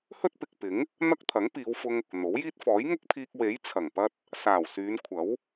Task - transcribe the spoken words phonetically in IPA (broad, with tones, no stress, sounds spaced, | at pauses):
h ɵ˥ t̚ p ɪ˨ k̚ p ɪ˨˥ ŋ | n̪ ɐ˥ k̚ t̪ʰ ɐ˨˥ ŋ p iː˨˧ w f ʊ˧ ŋ | n̪ o˨˥ w j iː˥ t̚ f ɔː˨˥ j ŋ ʊ˥ k̚ pʰ iː˧ k̚ w e˨˥ j t͡sʰ ɐ˨˩ ŋ p ɐ˥ t̚ | s aː˨˩ w s yː˨˧ n kʷʰ ɐ˨˥ w